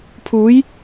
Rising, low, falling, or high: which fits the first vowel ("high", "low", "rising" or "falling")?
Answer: rising